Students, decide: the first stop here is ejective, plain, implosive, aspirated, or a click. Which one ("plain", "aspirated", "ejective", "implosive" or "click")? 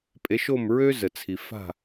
ejective